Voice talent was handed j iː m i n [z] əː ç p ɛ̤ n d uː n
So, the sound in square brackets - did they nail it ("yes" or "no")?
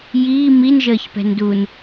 no